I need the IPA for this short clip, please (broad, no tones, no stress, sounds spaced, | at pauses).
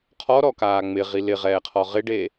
qʰ ɔ ɾ ɔ k aː ŋ͡m ɪ ʁ i l ɪ ʁ ɛː qʰ ɔ ʁ ɪ ɖ e